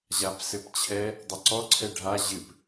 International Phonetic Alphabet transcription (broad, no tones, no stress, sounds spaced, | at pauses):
ʑ a p s ɘ p t͡ɕʰ ɛ | dˤ ɐ ǀ ɔ ǀʰ ɛ ɖʱ a ʑ ɨ p